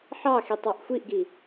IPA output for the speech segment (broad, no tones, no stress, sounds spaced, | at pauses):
ħ ɑ x i tˤ ɑ ʔ xʷ i ʔ ɡ i